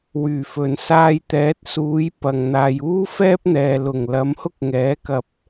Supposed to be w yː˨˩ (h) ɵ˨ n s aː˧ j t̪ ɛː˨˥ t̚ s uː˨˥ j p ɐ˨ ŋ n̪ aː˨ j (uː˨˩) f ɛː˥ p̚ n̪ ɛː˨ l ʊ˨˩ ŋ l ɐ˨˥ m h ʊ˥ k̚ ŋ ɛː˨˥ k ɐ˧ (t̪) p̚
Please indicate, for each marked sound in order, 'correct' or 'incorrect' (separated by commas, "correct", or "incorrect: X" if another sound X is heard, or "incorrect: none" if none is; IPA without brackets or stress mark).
incorrect: f, incorrect: uː˥, incorrect: none